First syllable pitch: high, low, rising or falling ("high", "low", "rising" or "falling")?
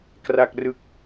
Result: low